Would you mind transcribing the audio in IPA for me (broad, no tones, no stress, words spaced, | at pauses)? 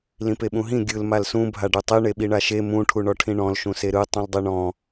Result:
lĩpeɓũɦĩ ɡʲɯl malsũ bʱaɖutˤi ɳeɓiɳaʃe mũ ʈʰuɳɔʈʰĩɳɔ̃l ʃũseɾɯ tˤũldˤiɳɔ̃